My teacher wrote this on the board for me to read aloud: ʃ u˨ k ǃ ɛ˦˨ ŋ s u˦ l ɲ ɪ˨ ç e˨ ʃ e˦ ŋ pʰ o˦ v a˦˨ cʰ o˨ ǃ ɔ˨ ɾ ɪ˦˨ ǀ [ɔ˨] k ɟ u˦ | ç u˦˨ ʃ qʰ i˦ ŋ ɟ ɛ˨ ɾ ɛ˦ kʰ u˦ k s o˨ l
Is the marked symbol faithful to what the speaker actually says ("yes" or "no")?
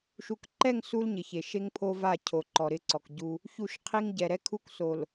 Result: yes